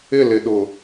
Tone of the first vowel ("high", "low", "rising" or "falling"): falling